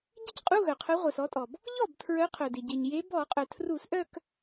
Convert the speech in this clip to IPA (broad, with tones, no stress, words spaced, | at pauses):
ɟɪ˥˧cqʼu˧˥˧ɣœ˩ qʰœ˨˦ʁʷœ˩s ɔ˨˦tʼɔ˩b | ʎɔ˥˩btʰɹœ˨˦qʰœ˩dɪ˩ ɟe˩ɲ je˨˦bɔ˧˩˧qʼœ˩ tʰru˧˩˧sʔœ˥˧k